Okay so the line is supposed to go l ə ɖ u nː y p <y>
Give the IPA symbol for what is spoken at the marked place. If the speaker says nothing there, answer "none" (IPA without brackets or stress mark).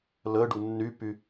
y